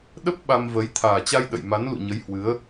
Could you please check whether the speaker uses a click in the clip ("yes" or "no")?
no